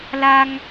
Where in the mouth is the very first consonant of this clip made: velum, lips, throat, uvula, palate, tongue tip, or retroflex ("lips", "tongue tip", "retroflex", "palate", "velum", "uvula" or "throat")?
tongue tip